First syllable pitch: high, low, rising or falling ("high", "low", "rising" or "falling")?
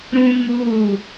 high